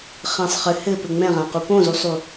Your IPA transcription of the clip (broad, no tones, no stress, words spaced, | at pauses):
χɛ̃sˤ χɘ hɘpɘ ŋ͡mɛ̃ʁãqu põzusˤu